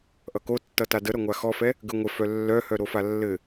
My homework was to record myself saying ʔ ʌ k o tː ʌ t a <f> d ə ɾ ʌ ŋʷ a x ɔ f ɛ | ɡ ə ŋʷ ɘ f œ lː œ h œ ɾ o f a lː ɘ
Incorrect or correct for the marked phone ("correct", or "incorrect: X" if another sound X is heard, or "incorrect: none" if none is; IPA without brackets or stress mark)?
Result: incorrect: none